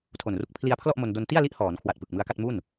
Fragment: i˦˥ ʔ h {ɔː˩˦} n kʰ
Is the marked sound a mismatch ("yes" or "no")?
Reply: no